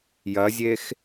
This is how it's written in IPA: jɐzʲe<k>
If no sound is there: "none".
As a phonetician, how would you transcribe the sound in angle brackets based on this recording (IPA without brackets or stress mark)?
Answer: x